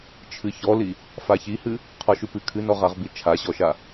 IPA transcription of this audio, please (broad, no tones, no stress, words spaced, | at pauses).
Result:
t͡ʃʰɨçɔli | façihɨ | qʰɔʃʉpɨ kʰɨnɔʁaʁ bit͡ʃʰaɕɔʃa